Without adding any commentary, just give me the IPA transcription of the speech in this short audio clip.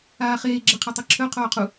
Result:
aː χ eː ɡ͡ǁ ɛ qʰ a tˤ e ǁʰ œ qʰ oː qʰ u

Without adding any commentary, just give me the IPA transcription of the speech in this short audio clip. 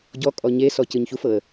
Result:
ɟ ɔ kʼ ɔ ɲ e s ɔ c ɯ ɲ ç u f ɤ ə̯

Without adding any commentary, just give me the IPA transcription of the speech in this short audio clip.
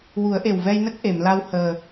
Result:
w u˨˩˦ ə̯ ʔ e˨˩ w v ɛ˧ j n ə˦˥ k̚ ʔ e˨˩˨ m l a˧ w h əː˨˩

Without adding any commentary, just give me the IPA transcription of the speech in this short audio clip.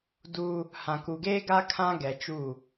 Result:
d u˦ | h ã˨ k u˨ ɡ eː˦ ɡ a˦ kʰ ã˦ ɡ ɛ˨ t͡ʃ u˦˨

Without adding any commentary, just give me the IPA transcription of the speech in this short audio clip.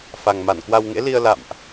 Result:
f a˨˩ ŋ m a˧˩ n k w a˧ w ŋ ḛ˧˥ l i˧ ə̯ l a̰˧˨ m ʔ

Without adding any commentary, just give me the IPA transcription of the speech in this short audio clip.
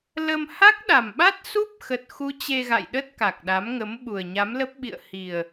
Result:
l ə˧ m h a˦˥ k̚ ɗ a˨˩ m ɓ a˦˥ t̚ s u˦˥ p̚ x ə˨˩ t̚ x u˨˦ t͡ɕ e˧ ɣ a̰˧˨ j ɗ ə˦˥ t̚ k a˨˩ k̚ ɗ a˨˦ m ŋ ə˨˦ m ɓ u˨˩ ə̯ ɲ a˨˦ m l ə˦˥ p̚ ɓ ḭ˧˨ ə̯ h i˨˩ ə̯

